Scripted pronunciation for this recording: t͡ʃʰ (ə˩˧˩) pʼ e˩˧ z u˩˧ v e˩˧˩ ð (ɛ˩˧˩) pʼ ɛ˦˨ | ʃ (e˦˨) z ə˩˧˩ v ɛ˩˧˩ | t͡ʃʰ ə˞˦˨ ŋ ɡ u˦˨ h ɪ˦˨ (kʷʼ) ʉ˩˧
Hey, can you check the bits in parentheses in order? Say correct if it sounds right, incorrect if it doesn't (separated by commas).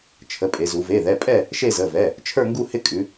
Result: correct, correct, correct, incorrect